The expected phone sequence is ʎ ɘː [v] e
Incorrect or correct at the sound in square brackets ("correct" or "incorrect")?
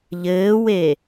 incorrect